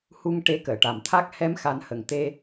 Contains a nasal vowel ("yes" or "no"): no